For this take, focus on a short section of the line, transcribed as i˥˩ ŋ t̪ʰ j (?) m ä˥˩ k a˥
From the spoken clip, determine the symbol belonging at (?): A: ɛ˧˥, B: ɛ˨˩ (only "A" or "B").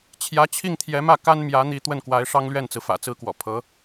A